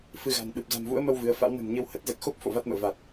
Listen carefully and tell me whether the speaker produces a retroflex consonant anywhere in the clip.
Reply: no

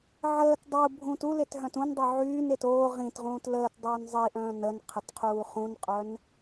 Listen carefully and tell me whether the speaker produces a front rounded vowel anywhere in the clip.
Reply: yes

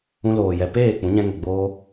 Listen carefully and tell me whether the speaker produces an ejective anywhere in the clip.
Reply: no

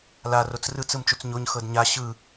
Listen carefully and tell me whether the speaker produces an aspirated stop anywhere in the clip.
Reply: no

